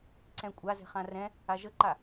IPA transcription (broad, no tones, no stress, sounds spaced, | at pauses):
ǀ ɛ̃ kʷʼ a z ɛ̤ χ ã r ɛ̃ | a ʒ ə ǃ a